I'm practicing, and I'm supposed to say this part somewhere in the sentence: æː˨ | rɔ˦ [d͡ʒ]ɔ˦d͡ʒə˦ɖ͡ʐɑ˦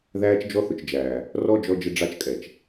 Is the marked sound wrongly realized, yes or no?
no